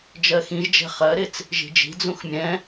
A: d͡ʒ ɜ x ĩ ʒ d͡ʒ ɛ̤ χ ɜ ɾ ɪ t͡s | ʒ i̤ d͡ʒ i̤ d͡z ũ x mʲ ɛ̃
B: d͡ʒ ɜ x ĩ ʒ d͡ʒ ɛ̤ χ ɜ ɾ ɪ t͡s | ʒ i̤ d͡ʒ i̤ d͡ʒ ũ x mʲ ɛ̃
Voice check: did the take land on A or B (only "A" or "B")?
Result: A